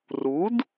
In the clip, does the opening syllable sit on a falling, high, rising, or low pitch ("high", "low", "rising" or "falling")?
rising